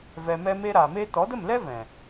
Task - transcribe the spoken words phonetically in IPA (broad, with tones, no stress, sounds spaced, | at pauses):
v ɛ˧ m ɛ˦ m e˦ ɾ a˨ m e˦ t ɔ˨˦ d ə˦˨ m l ɛ˦ v ɛ̃˨